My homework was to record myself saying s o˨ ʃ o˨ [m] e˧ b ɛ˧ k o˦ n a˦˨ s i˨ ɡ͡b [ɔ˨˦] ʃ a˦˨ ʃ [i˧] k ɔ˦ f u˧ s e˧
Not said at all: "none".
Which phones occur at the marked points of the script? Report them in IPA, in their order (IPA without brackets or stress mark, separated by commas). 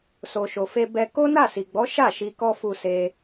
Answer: f, ɔ˨˦, i˧